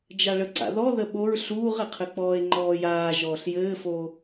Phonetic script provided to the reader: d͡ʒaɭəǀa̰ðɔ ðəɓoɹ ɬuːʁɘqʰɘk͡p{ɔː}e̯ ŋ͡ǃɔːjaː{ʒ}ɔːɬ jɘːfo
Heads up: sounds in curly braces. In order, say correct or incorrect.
correct, correct

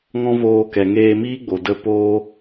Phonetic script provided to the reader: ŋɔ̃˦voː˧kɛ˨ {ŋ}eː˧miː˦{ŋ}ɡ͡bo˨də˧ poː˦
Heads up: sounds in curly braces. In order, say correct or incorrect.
correct, incorrect

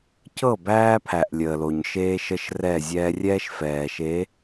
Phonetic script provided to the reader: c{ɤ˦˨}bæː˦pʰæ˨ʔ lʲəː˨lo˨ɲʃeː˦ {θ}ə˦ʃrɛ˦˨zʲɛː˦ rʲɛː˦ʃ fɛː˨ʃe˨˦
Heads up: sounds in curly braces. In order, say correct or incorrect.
correct, incorrect

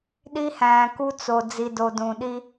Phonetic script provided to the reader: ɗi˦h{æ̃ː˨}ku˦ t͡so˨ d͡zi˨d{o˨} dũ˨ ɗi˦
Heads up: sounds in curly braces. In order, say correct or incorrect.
correct, correct

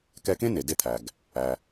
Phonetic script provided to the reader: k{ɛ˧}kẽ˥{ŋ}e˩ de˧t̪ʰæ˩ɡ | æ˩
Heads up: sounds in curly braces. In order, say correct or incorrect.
correct, incorrect

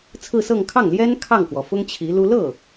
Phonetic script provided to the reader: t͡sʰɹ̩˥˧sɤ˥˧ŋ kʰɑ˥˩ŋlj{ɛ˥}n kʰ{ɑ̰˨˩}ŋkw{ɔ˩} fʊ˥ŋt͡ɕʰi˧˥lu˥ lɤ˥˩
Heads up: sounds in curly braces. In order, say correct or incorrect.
correct, incorrect, correct

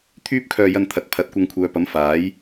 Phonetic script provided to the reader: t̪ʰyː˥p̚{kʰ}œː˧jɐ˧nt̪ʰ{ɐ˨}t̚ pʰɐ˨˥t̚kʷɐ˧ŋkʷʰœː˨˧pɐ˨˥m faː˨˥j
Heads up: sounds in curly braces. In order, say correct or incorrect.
correct, correct

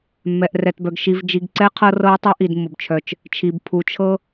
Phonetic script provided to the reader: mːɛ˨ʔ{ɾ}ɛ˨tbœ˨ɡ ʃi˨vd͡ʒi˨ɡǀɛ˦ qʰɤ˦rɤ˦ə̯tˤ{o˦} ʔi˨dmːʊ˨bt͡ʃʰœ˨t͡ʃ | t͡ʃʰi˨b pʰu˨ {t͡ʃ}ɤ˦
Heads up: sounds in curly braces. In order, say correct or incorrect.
incorrect, incorrect, incorrect

